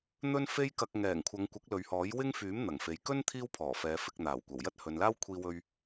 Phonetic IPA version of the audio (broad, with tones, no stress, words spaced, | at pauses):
n̪ɵ˥nfe˥jkɐ˧k̚ ŋɛː˨˩ŋ kʷʰɐ˨˧ŋkʷɐ˨˥k̚ lɵ˨ɥhɔː˨˥j wɪ˥ŋfyː˨˥m n̪ɐ˨˩ŋfe˨j kɵ˥n t̪ʰiː˥wpʰɔː˨˩fɛː˨˧ fɪ˧k̚n̪aː˨˩wkʷɐ˨˩w jɐ˥t̚hɵ˨nlaː˥wkʷʰiː˧ wɵ˥ɥ